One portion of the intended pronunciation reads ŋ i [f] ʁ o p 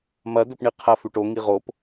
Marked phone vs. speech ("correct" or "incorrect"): incorrect